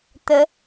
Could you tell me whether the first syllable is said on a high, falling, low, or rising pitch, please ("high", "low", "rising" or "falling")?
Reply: rising